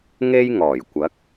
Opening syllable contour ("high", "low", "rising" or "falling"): high